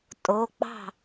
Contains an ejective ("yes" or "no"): yes